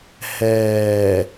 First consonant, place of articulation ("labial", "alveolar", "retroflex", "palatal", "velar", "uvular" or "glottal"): glottal